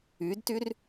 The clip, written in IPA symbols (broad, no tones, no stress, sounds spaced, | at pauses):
y d t y r